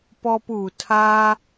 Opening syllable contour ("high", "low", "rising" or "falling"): high